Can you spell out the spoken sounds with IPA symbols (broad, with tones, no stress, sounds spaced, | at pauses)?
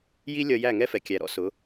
j i˦ lʲ ʌ˧ j æ˦˨ ŋ ɛ˦ f ɛ˨ kʲ æ˧ ɾ ɔ̰˦ s ʊ˨˦